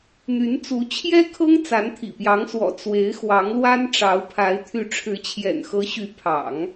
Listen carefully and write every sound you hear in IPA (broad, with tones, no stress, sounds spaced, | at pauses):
n̪ y˧˥ n t͡s u˧˥ t͡ɕʰ j ɛ˥ kʰ ɤ˥ ŋ t͡s a˧˥ n t̪ʰ ḭ˨˩ p j ɑ˧˥ ŋ s w ɔ̰˨˩ t͡s w e˧˥ ɪ̯ x w ɑ˧˥ ŋ l w a˥ n ʈ͡ʂ ɑ˧˥ ʊ̯ pʰ a˧˥ ɪ̯ t̪ʰ y˧˥ ʈ͡ʂʰ ɻ̩˧˥ t͡ɕʰ j ɛ̰˨˩ n x ɤ˧˥ ɕ y˧˥ pʰ ɑ̰˨˩˦ ŋ